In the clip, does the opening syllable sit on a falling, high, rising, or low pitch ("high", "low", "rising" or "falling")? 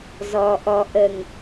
low